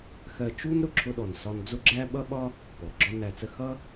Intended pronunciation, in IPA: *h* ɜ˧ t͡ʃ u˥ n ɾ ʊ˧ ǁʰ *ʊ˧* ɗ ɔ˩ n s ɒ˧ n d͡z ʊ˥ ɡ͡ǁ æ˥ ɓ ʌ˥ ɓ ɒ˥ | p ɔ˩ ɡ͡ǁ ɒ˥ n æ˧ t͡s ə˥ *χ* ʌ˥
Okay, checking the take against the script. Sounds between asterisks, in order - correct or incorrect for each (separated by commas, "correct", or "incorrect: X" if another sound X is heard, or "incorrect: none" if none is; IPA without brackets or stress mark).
incorrect: x, correct, incorrect: x